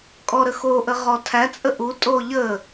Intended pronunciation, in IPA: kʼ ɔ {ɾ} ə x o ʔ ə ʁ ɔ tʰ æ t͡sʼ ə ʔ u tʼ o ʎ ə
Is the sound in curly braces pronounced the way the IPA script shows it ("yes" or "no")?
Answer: yes